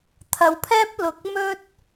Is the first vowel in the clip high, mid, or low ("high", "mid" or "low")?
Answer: low